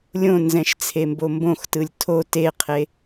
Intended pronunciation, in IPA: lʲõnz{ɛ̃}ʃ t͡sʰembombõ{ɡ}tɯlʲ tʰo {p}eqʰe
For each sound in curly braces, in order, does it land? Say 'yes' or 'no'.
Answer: yes, no, no

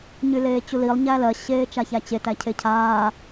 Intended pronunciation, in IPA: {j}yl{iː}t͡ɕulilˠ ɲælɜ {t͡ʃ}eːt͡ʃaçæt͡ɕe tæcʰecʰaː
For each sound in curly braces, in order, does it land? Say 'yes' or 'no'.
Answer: no, no, no

